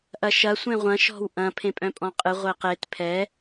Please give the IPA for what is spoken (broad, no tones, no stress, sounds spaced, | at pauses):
ʔ ɐ ʃ ɐ sʷ ẽ ʁʷ ɐ̃ ʃ ɔ̤ w ʔ ɐ̃ pʰ ẽ pʼ œ̃ pʼ ɔ̃ qʼ ɨ ʁʷ e q e t pʰ ɛ